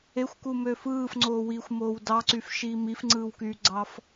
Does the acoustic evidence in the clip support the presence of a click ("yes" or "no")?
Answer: yes